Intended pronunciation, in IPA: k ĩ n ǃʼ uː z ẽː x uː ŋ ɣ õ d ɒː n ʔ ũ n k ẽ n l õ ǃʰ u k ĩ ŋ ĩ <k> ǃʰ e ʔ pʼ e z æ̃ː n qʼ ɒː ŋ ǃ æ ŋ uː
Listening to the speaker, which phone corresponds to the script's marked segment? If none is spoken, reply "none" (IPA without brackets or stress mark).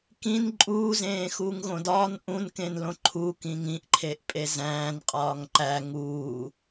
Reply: ʔ